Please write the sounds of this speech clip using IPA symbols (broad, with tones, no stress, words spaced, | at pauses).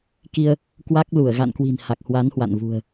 ki˧ə̯ | kwa˦˥k̚lu˧˩ə̯ ɣa̰˧˨nkwi̤˨˩n ha˨˩k̚hwa˨˦nhwa̰˧˨nvṳ˨˩ə̯